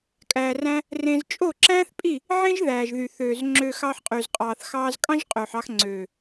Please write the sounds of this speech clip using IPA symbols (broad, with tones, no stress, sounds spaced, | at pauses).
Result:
kʼ æː˨ r æ̃˧ | r ẽ˧ z t͡ʃʼ o˦˨ ǁ æ̃ː˦ θ pʼ i˦˨ | ʕ ẽ˦ ʒ ð æː˨ ʒ ð y˨ θ øː˨ z ŋ͡ǁ øː˨ x ɑ˧ ħ qʼ y˨ z qʼ ɑː˨ θ x ɑː˧ z kʼ ɑ̃˦ ʒ qʼ øː˨ ħ ɑ˧ x ŋ͡ǀ øː˨